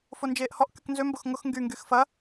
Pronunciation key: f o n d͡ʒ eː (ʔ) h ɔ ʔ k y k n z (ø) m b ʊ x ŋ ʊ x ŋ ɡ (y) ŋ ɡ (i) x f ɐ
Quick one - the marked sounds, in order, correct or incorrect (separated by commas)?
correct, correct, correct, incorrect